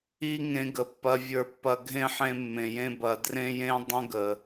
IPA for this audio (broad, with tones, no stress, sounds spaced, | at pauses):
i˦ ŋ ẽ˦ ɡ ə˧ pː ɐ˦ vʲ ə˞˧ pː ɐ˧ ɡʱ ẽ˦ ħ ẽ˧ mː ẽ˨ j ẽ˧ b ɐ˨ d r ẽ˧ j ẽ˧ dˤ ə̃˦ ɡ ə˨